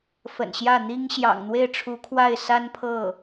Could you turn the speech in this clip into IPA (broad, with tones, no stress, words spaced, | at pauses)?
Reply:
fə̰˨˩nɕjä˥˩n̪i˥ŋ ɕjɑ̰˨˩ŋn̪we˥˩ɪ̯ʈ͡ʂʰu˧˥kʰwa˥˩ɪ̯ sa˥npʰɤ˥˩